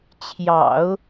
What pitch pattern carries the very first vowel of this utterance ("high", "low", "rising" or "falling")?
low